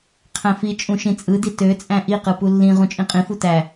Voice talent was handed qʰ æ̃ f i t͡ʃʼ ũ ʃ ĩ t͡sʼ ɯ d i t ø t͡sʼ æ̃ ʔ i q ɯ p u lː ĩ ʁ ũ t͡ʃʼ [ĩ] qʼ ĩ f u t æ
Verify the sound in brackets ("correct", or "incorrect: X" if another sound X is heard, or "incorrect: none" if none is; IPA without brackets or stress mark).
correct